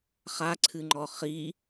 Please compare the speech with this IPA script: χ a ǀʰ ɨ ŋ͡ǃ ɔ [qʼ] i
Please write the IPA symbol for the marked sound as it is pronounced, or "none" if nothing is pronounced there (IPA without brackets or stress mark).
χ